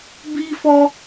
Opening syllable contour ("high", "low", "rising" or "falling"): high